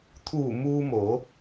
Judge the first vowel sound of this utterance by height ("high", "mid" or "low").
high